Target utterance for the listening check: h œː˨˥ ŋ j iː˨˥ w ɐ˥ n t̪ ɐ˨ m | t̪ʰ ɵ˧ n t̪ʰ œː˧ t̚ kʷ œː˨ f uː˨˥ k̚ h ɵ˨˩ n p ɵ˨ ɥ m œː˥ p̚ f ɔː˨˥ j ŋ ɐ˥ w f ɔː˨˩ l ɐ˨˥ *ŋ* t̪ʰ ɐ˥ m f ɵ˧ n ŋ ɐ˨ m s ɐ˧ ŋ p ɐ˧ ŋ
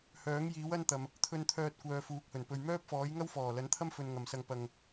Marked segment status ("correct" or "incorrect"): incorrect